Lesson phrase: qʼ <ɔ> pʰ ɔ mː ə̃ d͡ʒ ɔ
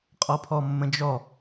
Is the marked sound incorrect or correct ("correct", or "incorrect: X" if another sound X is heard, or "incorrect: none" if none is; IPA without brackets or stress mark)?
correct